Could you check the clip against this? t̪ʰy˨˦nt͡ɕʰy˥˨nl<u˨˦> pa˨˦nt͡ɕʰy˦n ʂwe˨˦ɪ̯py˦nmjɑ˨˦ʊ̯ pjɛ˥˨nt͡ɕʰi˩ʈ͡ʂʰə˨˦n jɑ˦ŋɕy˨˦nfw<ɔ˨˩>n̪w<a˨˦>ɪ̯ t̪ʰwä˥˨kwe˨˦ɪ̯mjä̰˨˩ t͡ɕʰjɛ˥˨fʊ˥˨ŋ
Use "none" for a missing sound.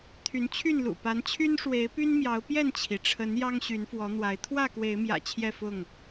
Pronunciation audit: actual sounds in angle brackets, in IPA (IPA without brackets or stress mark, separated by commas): ṵ˨˩, ɔ˨˦, a˨˦